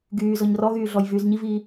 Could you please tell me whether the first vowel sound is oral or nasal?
oral